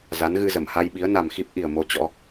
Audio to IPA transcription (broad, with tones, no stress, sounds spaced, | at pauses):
z a˨˦ n ɣ ɨ˧ z ə˧˩ m h a˧ j ɓ i˨˦ ə̯ n a˨˩ m x i˦˥ p̚ ʔ i˨˩ ə̯ m o˧ t͡ɕ ɔ̰˧˥